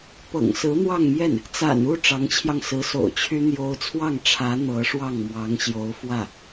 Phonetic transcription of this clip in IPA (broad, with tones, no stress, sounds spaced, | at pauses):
p ɤ̰˨˩ ŋ s ɹ̩˧˥ n̪ w ɑ˥˧ ŋ m j ɛ˥˩ n | t͡s a̰˨˩ n u˥˩ ʈ͡ʂ ɑ˧˥ ŋ t͡ɕʰ j ɑ˧ ŋ s ɹ̩˧˥ s o̰˨˩ ʊ̯ t͡ɕʰ y˥ n̪ j o˥ ʊ̯ t͡sʰ w ɑ˥˩ ŋ ʈ͡ʂʰ ä˧˥ n̪ ɤ˧˥ ʂ w ɑ˥˩ ŋ m w ɑ˧˥ ŋ ɕ j o˧˥ ʊ̯ f w ä˥˩